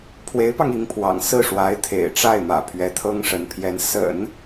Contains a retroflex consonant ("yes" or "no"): yes